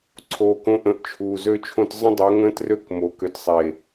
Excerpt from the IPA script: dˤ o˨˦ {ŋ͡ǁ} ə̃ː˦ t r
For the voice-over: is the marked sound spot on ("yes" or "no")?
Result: no